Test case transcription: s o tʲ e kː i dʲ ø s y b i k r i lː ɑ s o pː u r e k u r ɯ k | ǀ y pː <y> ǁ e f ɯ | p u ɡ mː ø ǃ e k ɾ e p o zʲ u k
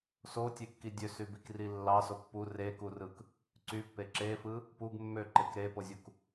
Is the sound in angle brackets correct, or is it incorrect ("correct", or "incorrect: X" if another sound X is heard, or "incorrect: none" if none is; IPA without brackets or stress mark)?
incorrect: e